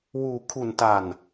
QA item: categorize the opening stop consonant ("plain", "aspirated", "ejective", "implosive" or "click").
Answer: aspirated